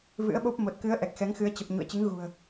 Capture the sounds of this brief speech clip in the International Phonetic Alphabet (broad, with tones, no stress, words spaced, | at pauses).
vɨ̰˧˥ə̯ɓo˦˥p̚ mo˨˩t̚kɨ˨˦ə̯ ʔɛ˨˩k̚xɛ˨˦ŋxɨ˨˦ə̯ t͡ɕə˨˩p̚ ɲṵ˧˨ə̯t͡ɕɨ˨˦ŋɣṳ˨˩ə̯